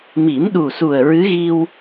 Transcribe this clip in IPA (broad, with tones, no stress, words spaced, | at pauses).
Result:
mi˨˩˦mɗu˨˩su˨˩ə̯ ɹɨ˧˥ɣi˧w